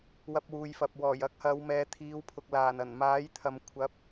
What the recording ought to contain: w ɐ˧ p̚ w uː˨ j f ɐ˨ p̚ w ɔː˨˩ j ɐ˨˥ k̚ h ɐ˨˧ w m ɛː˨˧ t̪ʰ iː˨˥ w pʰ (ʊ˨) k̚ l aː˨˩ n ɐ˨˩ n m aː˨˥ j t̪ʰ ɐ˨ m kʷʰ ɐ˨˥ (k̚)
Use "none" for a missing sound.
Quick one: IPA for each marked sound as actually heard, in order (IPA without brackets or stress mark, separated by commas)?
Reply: ʊ˨, p̚